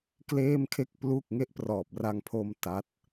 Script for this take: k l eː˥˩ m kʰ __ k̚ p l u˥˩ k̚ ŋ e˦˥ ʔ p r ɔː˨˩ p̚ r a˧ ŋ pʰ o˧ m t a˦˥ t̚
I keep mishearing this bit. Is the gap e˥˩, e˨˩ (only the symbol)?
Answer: e˥˩